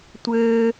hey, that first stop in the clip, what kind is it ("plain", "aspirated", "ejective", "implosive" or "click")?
plain